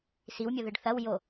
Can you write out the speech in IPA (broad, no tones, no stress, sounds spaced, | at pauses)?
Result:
s i w mʲ o ð ɨ ɖ θ ɐ w j o